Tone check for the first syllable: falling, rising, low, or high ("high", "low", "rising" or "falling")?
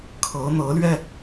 rising